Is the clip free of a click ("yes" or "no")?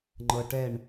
no